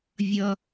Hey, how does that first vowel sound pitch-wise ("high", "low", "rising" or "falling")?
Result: high